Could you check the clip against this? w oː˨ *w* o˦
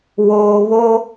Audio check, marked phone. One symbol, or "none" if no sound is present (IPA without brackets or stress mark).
β